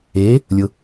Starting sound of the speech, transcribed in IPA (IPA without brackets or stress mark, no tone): eː